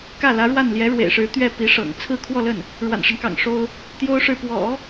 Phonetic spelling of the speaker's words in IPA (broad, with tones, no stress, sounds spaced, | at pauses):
k ä˥˩ l ä˧˥ ɻ w a˥˩ n l j ɛ˧˥ ɻ w ḛ˨˩ ɪ̯ ʂ ɻ̩˧˥ t̪ ɥ ɛ˥˩ p i˧˥ ʂ ɤ̰˨˩ ŋ t͡sʰ ɹ̩˥˧ kʰ w ɔ˥˧ l ə˥˩ n | ɻ w a̰˨˩ n ʂ ə˦ n k ɑ̰˨˩ ŋ ʂ o˥ ʊ̯ | t̪ j o˥ ʊ̯ ʂ ɻ̩˥˩ p w ɔ̰˨˩˦